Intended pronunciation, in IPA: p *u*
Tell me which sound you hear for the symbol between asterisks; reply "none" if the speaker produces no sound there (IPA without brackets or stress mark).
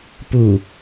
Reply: u